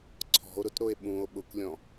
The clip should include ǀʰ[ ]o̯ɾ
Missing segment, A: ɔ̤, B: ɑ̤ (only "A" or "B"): A